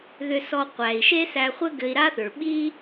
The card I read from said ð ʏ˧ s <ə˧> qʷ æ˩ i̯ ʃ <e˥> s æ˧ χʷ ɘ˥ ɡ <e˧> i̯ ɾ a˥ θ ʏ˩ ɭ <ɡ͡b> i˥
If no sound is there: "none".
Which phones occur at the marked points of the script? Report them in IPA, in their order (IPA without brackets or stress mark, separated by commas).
ɔ˧, e˥, ɘ˧, ɓ